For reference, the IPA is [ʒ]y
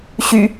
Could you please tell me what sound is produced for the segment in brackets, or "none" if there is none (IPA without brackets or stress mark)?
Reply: ɕ